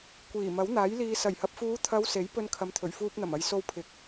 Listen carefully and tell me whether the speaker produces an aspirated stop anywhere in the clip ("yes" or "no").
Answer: yes